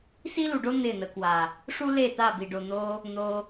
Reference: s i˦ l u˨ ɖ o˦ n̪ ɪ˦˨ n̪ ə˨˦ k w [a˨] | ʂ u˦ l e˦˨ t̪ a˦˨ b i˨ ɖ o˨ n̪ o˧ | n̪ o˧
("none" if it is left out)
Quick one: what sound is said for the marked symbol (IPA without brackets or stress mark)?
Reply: a˨